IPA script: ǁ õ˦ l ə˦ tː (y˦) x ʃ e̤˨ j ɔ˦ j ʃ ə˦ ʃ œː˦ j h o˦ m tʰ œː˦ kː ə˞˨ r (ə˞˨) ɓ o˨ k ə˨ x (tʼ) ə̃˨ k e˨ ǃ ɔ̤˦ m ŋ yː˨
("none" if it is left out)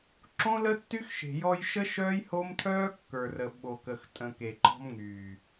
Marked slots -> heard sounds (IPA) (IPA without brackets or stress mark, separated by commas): y˦, ə˨, tʼ